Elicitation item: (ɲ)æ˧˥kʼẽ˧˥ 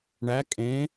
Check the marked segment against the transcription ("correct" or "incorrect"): incorrect